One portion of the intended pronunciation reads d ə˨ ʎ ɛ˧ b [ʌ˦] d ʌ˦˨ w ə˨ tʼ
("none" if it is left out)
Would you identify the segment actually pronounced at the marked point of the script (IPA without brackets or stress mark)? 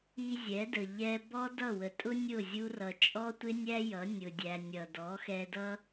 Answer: ɔ˦